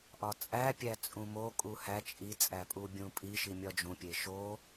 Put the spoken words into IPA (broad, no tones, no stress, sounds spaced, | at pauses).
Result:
ʔ ɒ t͡sʼ æ pʲ æ t͡sʼ ũ m o kʼ u h æ t͡ʃʼ i t͡sʼ æ pʼ u bʲ ũ pʼ i ʃ i mʲ ɒ d͡ʒ ũ pʲ e ʃ o